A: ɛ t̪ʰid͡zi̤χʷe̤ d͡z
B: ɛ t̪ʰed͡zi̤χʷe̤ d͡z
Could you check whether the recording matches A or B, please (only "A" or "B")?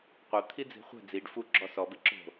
A